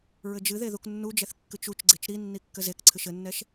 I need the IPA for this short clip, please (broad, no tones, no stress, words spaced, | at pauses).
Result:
ɹɘd͡ʒɨðe ðuknːud͡ʒɛθ kːɨt͡ʃut͡ʃɡ͡ǀet͡ʃ ɾinːi kːɘzekǀʰɨʃ ɘnːɛʃ